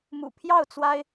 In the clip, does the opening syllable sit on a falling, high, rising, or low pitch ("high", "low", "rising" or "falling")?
low